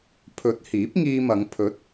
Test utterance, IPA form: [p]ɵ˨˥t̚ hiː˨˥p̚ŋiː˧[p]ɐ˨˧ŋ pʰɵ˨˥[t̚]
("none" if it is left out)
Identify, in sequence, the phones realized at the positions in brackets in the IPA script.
pʰ, m, t̚

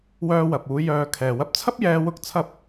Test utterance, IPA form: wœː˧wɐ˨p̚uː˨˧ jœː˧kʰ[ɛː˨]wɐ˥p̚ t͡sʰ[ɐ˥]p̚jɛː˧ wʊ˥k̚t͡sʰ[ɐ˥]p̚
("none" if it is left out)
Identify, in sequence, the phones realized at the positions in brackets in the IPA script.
ɛː˨, ɐ˥, ɐ˥

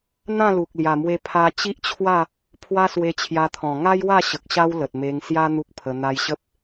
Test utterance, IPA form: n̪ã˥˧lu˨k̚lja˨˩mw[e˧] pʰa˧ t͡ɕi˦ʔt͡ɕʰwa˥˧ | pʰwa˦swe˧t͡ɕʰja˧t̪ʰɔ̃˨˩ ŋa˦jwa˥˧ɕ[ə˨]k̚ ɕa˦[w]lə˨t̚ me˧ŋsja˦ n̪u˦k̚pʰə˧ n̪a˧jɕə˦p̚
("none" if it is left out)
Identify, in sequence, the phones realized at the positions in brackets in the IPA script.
e˧, ə˨, w

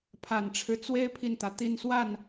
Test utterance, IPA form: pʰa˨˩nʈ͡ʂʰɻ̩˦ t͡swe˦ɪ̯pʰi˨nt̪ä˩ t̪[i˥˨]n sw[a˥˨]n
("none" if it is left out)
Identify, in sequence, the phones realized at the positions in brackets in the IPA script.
i˥˨, a˥˨

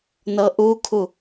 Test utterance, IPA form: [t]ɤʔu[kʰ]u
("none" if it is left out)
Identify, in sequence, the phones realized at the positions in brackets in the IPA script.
n, kʰ

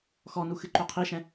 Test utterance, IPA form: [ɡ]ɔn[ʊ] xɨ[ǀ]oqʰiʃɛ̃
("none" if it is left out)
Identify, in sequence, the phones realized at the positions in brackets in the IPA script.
x, u, ǃ

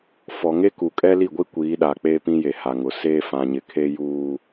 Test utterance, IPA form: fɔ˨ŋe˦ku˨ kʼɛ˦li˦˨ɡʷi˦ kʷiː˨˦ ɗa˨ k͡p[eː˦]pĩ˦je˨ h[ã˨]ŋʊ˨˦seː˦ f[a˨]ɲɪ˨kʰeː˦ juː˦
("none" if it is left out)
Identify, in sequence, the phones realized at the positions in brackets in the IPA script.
eː˦, a˨, ã˨

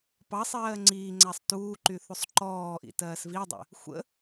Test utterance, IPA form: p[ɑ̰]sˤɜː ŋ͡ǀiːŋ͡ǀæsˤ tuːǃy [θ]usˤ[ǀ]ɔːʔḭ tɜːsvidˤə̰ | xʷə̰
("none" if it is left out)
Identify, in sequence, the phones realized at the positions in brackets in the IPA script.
ɑ, θ, ǃ

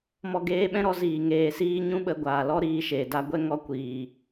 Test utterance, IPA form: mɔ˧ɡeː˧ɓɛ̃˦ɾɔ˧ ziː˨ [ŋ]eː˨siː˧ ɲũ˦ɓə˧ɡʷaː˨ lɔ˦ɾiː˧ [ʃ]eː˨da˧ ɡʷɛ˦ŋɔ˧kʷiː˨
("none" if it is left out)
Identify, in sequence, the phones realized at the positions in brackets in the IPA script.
ŋ, ʃ

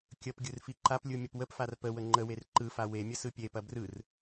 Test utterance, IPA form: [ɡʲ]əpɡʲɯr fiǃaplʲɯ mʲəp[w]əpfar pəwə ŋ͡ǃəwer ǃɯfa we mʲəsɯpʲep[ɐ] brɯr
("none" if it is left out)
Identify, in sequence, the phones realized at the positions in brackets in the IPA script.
kʲ, w, ɐ

